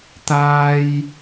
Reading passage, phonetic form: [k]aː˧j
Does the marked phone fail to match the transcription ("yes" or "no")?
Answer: yes